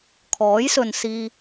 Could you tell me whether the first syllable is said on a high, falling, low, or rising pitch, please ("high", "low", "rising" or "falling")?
rising